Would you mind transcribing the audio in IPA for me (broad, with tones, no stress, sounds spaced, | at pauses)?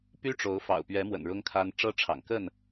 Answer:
p y˦ ʈ͡ʂ o˨˦ ʊ̯ f ɑ̰˨˩ ʊ̯ p ɥ ɛ˨˦ m w ə̰˨˩ n ɻ ʊ˦ ŋ kʰ a˦ n ʈ͡ʂ ɤ˦ ʈ͡ʂʰ ɑ̰˨˩ ŋ k ə˥˨ n